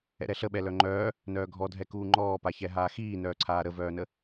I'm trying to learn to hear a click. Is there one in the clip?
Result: yes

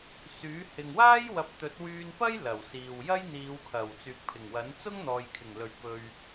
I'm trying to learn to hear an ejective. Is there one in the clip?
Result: no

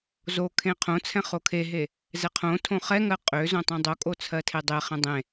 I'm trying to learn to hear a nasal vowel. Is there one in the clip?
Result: yes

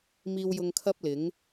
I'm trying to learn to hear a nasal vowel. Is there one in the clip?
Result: no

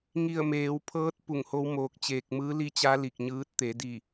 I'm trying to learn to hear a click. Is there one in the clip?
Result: no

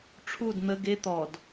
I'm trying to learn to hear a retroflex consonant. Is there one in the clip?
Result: yes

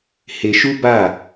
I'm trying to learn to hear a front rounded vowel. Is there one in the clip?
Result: no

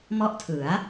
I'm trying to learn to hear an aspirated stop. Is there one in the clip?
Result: yes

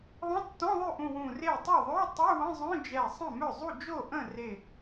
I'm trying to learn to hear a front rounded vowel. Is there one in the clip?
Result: yes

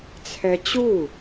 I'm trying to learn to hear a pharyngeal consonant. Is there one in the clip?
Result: no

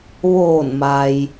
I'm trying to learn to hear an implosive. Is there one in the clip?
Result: no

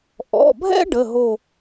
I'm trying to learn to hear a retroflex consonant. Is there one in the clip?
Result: yes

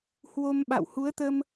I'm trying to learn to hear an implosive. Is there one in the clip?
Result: yes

